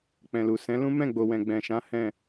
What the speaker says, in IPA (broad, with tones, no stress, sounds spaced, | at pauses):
k͡p ɛ̃˨ l u˨ s ɛ̃˨˦ l ũ˦ m ɛ̃˦˨ ɡ͡b o˨ w ɛ̃˨ ɡ͡b ɛ̃˨ ʃ ã˨˦ h ɛ̃˦˨